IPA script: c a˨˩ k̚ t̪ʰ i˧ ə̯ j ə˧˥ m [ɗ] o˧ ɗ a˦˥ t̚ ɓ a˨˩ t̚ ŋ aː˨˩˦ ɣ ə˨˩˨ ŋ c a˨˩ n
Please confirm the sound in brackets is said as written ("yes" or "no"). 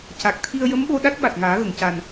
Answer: no